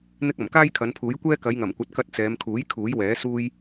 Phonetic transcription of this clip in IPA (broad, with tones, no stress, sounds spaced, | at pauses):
n̪ ɪ˥ k̚ ɐ˨˩ m k aː˥ j kʰ ɐ˨˧ n pʰ uː˨˥ j kʷ ɛː˥ k ɐ˨˧ j ŋ ɐ˨˩ m kʷ ɐ˨˥ t̚ k ɐ˧ t̚ t͡s ɛː˨˧ m kʰ uː˨˥ j kʰ uː˨˥ j w ɛː˨˥ s uː˥ j